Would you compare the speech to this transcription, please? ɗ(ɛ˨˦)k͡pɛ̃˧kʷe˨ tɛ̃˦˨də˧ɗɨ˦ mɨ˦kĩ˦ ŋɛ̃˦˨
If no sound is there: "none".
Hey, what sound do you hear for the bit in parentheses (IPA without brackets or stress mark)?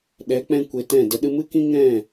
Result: ɛ˨˦